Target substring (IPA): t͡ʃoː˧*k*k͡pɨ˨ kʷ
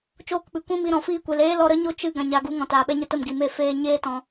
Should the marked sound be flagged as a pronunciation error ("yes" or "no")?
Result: no